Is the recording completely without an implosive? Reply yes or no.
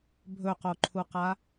yes